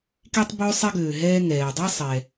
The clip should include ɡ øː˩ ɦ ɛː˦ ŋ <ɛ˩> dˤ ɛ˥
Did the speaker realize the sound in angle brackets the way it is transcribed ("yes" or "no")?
no